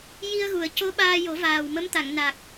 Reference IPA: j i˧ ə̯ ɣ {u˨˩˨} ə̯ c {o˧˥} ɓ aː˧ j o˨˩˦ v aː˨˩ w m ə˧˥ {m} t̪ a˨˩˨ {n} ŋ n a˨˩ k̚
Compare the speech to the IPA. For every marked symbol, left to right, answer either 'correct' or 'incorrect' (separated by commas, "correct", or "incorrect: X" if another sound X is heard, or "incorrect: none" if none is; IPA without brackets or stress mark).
correct, correct, correct, incorrect: none